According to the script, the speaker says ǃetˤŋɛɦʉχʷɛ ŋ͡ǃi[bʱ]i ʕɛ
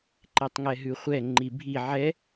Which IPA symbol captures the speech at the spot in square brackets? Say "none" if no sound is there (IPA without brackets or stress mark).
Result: bʱ